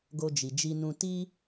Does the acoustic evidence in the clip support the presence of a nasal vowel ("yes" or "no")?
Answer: yes